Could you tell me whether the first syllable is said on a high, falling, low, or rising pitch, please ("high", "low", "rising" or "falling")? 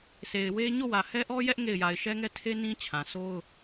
low